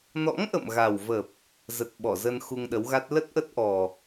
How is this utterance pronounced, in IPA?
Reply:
n ɔ̰˧˥ ŋ ʔ ə̰˧˨ m ɣ a˨˩ w v ə˨˩ p̚ | z ə˨˩ t̚ ɓ ɔ˧˩ z ə˧ n x u˧ ŋ ɗ ə˨˦ w ɣ a˦˥ t̚ l ə˦˥ t̚ ʔ ə˦˥ t̚ ʔ ɔ˨˩

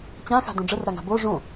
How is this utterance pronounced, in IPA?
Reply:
t͡ɕ ã x a̤ d õ ɖ͡ʐ ə r ɾ a ŋ a̤ b o ʐ õ

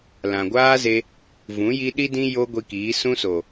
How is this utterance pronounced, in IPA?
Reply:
l ã˨ ɡʷ aː˦ z e˧ | v ũ˨˦ j i˧ ɗ i˦ d ĩ˦ j o˦ ɡʷ i˧ k iː˨˦ s ũ˦ s o˨

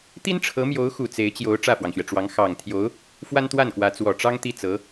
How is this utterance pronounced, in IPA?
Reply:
t̪ i˥ n ʈ͡ʂʰ ɤ˧˥ m j o˧˥ ʊ̯ x u˨˩ t͡s e˧˥ ɪ̯ t͡ɕ j o˧˥ ʊ̯ ʈ͡ʂ ä˥˩ f w ɑ˩ ŋ ɕ ɥ ɛ˩ ʈ͡ʂ w ɑ˧˥ ŋ x ɑ˨˩ ŋ t̪ʰ j o˧˥ ʊ̯ | f w a˥ n t̪ w a˥˩ n k w ä˧˥ t͡s w ɔ˨˩ ʈ͡ʂ ɑ˥ ŋ t̪ i˥˩ t͡s ɤ˧˥

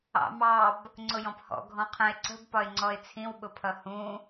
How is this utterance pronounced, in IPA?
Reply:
ɑ̰ m ɑ b | ŋ͡ǀ ʊ j ɔ̃ p h ɔ̰ ɡʱ ɔ̃ qʰ ə̃ ɪ̯ ǀ ə̤ b p ɒ ɪ̯ ŋ͡ǀ ɔ ɪ̯ t͡sʰ ĩ w ɓ ʊ pʰ ʌ h ũ

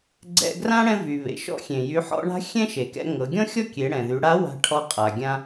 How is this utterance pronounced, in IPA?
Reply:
ɡ͡ǀ ɛ̰˧ ɡ r ã˥ ɽ ɛ̃˧ v y˩ β ḛ˩ ʃ ɔ̰˧ xʲ ẽ˩ j y˩˧ ħ ɔ̰˧ ɳ a̤˧˥ xʲ ɛ̃˥ ʃ e˩ k ɛ̰˧ ŋ ɤ˩˧ ɡʲ ɔ̃˥ xʲ ɔ˥ kʲ e˩˧ ɽ ɛ̃˩ ð y˩˧ ɽ a˧˥ w a̤˧ ʈʰ ɔ˧ qʼ a˩ ɡʲ ã˧

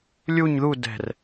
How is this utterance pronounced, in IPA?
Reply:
lʲ u ɲ ð u d ɛ̤ r

